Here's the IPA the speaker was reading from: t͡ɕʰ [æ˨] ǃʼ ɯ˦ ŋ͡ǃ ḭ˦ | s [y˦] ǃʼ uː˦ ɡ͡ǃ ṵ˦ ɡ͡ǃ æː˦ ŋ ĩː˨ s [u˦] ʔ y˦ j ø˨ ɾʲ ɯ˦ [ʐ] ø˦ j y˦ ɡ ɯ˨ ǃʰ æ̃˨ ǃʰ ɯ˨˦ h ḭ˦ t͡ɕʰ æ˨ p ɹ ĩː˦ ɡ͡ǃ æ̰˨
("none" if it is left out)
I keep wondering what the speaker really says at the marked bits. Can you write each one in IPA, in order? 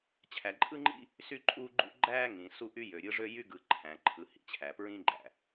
æ˨, y˦, u˦, ʐ

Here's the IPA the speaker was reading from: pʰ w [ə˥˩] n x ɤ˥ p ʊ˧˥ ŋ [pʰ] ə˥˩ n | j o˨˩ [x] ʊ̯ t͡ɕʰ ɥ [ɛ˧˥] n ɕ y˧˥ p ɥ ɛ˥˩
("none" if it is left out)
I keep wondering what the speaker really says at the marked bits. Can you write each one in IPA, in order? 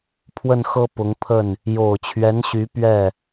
ə˥˩, pʰ, none, ɛ˧˥

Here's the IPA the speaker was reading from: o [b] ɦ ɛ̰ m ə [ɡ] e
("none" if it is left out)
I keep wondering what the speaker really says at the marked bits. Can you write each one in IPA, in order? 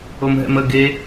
m, ɡ

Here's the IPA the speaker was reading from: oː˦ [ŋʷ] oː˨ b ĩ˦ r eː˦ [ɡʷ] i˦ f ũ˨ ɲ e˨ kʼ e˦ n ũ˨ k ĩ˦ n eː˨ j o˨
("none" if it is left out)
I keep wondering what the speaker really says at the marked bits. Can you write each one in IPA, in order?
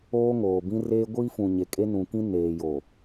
ŋ, ɡʷ

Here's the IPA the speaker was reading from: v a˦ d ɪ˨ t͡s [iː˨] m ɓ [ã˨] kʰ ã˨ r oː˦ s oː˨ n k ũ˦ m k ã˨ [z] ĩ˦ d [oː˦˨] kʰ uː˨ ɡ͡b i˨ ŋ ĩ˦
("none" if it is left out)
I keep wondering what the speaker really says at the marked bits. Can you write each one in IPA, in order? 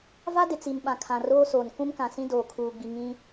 i˨, ã˨, s, oː˨

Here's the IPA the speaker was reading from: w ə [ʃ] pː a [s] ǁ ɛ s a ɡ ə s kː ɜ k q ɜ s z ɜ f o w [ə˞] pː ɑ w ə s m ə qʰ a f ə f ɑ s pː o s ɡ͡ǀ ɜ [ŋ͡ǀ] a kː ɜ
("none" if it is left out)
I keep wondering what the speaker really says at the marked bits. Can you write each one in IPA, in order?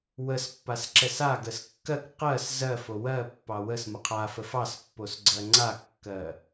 s, s, ɜ, ŋ͡ǀ

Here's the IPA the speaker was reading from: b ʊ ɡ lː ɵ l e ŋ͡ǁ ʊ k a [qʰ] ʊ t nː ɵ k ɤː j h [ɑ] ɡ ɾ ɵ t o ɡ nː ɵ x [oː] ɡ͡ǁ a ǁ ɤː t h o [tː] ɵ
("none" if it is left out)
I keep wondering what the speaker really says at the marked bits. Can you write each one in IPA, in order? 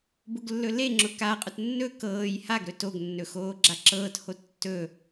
qʼ, a, oː, tː

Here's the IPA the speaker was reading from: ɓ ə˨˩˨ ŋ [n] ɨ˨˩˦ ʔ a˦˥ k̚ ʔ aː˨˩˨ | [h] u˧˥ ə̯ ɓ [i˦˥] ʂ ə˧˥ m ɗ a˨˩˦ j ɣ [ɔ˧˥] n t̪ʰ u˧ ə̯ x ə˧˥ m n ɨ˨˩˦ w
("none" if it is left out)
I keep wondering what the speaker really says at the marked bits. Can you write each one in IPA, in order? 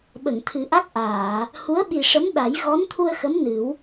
t̪ʰ, h, i˨˩, ɔ˧˥

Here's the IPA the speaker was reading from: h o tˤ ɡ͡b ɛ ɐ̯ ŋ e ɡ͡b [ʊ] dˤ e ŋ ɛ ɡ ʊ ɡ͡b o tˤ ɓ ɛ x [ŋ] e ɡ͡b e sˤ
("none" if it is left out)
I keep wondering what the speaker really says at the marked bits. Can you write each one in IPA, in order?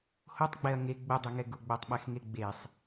ʊ, ŋ

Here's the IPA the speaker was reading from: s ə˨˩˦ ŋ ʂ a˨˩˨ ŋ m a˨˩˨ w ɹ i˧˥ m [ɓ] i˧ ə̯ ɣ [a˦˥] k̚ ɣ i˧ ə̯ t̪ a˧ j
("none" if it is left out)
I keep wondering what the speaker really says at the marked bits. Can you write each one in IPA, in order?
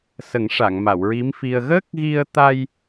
f, ə˦˥

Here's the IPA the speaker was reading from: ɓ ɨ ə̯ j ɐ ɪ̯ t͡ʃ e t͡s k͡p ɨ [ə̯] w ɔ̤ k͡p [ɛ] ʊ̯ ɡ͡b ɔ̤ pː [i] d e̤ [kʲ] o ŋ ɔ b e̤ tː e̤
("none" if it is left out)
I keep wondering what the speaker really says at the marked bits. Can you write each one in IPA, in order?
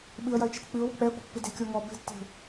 ʊ̯, ɛ, ɨ, kʲ

